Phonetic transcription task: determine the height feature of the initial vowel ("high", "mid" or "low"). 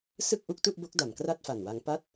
high